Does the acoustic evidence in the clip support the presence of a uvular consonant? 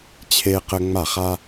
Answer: yes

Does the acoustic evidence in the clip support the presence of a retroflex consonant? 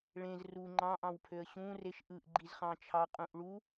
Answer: yes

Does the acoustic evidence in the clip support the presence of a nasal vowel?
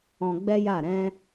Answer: yes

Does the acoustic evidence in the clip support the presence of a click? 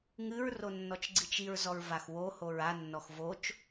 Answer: yes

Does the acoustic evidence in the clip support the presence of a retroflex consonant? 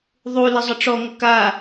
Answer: yes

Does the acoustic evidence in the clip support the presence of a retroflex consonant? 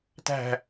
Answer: no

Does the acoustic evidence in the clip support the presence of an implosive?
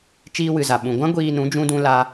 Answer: yes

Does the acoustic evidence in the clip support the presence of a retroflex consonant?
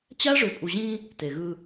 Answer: yes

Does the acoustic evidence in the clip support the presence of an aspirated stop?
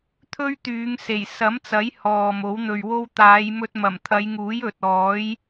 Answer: yes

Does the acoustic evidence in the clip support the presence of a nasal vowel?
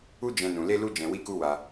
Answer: yes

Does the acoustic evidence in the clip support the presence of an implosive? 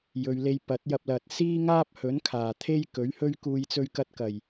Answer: no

